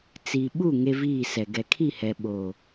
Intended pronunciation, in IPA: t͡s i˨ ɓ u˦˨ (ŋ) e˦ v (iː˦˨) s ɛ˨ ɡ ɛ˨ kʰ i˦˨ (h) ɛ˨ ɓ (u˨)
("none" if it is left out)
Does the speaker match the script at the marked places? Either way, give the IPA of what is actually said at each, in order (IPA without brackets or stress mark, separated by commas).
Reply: ŋ, iː˦˨, h, o˨